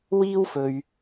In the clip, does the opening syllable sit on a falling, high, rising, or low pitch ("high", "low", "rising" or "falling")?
high